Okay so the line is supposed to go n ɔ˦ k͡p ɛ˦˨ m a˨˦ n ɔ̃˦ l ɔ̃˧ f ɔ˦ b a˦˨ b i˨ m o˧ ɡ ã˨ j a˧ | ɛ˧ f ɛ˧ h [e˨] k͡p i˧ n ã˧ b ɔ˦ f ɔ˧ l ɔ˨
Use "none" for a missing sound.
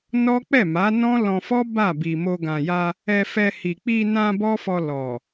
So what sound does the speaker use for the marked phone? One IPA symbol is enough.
i˨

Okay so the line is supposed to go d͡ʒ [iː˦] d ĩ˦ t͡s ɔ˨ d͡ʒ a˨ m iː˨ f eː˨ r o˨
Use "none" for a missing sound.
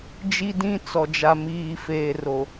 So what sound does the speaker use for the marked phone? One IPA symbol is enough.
i˦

